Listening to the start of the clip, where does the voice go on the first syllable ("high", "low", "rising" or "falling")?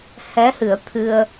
rising